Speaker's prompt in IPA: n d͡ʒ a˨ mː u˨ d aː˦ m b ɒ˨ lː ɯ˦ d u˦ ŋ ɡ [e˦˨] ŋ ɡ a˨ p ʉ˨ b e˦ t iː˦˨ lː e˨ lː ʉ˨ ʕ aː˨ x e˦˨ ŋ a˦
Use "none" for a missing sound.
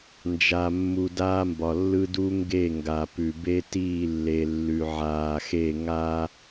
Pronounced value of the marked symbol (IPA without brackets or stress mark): e˦˨